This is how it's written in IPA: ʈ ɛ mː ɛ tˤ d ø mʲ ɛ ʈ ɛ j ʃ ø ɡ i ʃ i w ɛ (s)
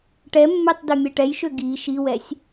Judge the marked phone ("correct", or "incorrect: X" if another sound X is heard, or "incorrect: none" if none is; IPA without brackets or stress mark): incorrect: sʲ